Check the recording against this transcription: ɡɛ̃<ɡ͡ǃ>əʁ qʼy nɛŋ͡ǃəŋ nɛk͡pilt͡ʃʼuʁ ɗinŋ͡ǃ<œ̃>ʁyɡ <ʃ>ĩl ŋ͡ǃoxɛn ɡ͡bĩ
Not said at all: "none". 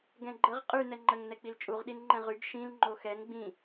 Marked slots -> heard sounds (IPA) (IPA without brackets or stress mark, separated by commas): ɡ͡ǃ, ɛ̃, ʃ